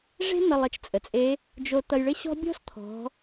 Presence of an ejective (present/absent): present